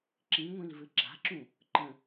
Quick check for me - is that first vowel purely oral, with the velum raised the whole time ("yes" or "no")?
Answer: no